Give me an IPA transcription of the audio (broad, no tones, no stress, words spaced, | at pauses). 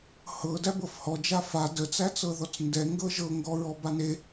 hɤ dæbɤfhɔ d͡ʒafa dət͡sæt͡sɤ ðɔt͡sndɛ ŋɡɤʒɤŋɡɔ ɹɔbane